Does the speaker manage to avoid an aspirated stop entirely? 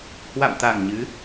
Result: yes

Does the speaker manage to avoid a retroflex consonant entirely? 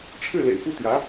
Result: no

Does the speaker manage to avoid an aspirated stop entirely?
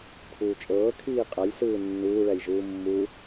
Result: no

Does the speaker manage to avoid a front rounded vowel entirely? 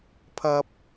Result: yes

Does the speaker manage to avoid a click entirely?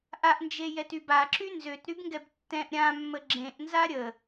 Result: no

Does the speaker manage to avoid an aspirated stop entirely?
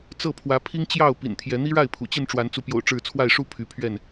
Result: no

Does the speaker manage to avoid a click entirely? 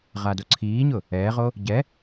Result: no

